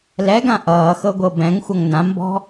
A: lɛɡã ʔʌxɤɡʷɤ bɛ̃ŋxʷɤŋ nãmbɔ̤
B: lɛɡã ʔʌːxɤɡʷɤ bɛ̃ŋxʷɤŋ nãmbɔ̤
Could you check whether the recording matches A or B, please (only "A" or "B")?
B